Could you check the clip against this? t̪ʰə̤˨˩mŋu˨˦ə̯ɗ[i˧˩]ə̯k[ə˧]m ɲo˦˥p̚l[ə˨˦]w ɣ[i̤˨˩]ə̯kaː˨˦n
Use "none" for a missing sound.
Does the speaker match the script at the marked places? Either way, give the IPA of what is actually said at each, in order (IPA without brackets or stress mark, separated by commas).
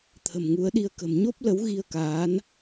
i˧, ə̤˨˩, ə˨˦, i˧